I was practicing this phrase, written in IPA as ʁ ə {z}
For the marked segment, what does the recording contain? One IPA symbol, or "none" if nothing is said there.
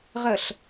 ɬ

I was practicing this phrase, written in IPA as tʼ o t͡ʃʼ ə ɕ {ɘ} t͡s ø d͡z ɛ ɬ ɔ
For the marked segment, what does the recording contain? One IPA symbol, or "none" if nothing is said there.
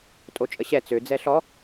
ɛ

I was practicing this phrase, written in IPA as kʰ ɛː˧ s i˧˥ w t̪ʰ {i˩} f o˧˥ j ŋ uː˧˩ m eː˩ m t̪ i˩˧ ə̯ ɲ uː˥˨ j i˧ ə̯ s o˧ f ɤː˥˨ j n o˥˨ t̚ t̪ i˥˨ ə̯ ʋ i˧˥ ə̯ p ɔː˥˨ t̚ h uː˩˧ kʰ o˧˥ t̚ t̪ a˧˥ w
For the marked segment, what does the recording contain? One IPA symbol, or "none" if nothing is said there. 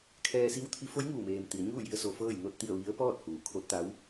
i˧˥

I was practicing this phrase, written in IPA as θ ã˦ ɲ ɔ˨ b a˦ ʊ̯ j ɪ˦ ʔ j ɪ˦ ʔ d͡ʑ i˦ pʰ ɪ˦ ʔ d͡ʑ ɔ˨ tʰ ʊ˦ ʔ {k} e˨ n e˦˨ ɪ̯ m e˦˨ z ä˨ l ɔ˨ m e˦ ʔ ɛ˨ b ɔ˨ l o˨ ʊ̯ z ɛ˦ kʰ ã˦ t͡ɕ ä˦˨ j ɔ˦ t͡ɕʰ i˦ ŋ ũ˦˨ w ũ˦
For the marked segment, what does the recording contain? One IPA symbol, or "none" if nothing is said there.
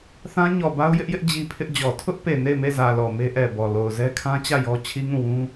p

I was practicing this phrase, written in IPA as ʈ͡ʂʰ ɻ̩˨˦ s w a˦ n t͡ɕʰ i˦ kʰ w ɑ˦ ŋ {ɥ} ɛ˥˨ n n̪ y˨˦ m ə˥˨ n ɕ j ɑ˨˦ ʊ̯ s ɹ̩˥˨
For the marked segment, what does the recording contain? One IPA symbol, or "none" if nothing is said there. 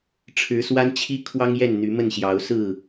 j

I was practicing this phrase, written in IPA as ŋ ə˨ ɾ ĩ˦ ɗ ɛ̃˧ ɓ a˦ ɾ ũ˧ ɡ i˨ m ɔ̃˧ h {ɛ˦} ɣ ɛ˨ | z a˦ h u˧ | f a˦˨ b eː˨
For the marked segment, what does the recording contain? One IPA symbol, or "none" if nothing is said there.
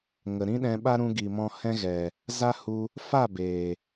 ɛ̃˦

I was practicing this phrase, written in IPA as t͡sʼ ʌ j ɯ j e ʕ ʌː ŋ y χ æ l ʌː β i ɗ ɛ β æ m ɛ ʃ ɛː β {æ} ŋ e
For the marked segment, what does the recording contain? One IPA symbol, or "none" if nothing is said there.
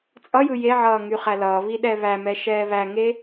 æ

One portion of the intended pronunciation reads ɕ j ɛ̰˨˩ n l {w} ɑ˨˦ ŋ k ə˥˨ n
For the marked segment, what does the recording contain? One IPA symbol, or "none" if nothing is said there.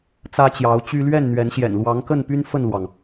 w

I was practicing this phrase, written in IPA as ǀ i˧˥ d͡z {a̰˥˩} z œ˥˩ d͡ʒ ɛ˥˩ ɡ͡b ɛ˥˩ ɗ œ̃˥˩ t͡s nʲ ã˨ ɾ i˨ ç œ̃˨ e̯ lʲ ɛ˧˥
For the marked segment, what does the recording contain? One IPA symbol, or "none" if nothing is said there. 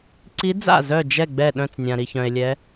a̰˥˩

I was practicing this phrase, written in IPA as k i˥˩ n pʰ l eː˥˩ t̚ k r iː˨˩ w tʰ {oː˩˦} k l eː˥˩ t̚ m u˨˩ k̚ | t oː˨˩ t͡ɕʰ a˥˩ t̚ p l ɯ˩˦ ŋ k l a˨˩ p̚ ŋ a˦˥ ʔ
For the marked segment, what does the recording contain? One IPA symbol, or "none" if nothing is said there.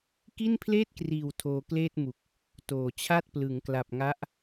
oː˧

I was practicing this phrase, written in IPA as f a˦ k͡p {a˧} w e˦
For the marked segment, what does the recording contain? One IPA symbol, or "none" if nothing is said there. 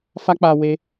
a˧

